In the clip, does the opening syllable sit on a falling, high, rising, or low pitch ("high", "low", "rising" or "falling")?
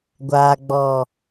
low